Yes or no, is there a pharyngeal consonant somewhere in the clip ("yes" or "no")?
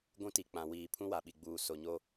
no